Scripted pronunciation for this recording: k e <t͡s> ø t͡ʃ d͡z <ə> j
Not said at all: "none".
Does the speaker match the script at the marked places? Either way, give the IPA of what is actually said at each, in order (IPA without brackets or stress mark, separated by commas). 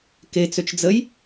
t͡s, ə